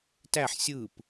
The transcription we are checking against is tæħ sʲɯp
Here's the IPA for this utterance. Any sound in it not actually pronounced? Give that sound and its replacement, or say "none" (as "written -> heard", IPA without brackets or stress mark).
none